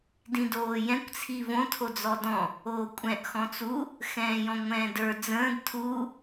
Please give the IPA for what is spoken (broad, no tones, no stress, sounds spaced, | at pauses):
d ĩ d oː j ɛ̃ kʷ t͡sʰ i v õ tʰ o d͡z ɔ d ɔ̃ | oː kʷʼ ɛ̃ ʔ x ɔ̃ t͡s u | x ɛ̃ː j ɔ̃ ŋʷ ɛ̃ː d ə˞ d͡z ə̃ː d tʰ u